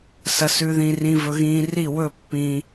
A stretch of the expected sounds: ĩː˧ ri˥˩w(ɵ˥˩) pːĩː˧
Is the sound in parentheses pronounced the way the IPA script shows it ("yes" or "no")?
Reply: yes